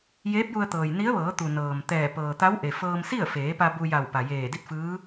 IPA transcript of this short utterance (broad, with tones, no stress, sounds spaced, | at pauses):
j eː˧˥ p̚ j u˧ ə̯ t̪ ɤː˩ j n i˧˥ ə̯ ʋ ɤː˩˧ t̪ u˩ n ɤː˩ m t̪ ɛː˧˩ p ɤː˩ t̪ a˧˥ w ʔ e˩ f ɤː˧ m s i˥˨ ə̯ f eː˩˧ p a˧ b u˧ j a˧˩ w p a˩ j eː˧˩ d i˥˨ t̚ f ɯː˧˥